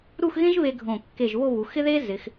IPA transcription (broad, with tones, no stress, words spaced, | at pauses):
ɾu˥˧xɣẽ˥ʒβe˧ ɡʱõ˧˩ kːe˧˩ʒ βo˥˧βu˩˧xɪ˥ðe˥ zɪ˩˧x